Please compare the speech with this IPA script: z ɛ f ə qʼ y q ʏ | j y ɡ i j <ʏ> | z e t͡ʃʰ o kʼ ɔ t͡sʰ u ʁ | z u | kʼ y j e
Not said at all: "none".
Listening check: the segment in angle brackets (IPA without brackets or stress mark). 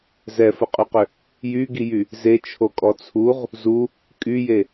y